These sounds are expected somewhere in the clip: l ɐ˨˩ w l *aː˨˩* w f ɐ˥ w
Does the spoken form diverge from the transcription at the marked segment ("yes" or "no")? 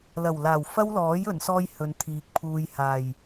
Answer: no